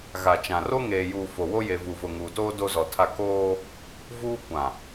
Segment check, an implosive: absent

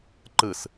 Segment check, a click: present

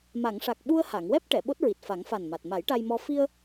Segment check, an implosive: present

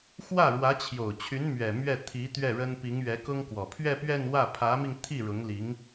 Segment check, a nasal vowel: absent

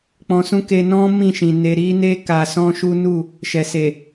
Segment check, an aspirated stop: absent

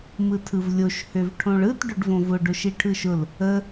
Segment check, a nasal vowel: present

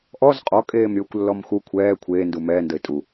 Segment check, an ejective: present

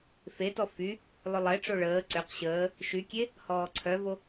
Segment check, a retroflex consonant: present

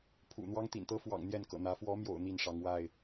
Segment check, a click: absent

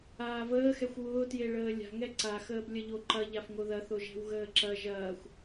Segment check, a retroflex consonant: present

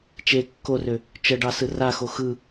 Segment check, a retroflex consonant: present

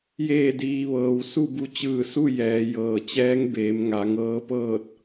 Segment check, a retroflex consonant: absent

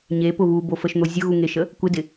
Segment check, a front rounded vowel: absent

